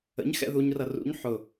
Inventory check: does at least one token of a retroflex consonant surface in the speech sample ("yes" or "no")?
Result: no